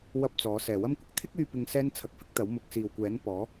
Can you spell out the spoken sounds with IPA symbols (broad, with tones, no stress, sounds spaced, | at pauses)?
w ɐ˥ p̚ t͡s ɔː˨˥ s ɛː˨˩ w ɐ˥ m kʷ ɪ˥ k̚ t̪ʰ ɪ˥ k̚ yː˧ p ɪ˨˧ ŋ s ɛː˥ n t͡sʰ ɐ˧ k̚ f ɪ˥ k̚ t̪ ɐ˨˥ w m ʊ˨˥ k̚ s iː˨ w kʷ ɛː˨˥ n p ɔː˨˥